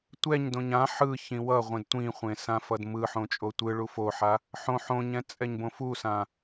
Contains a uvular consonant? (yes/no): yes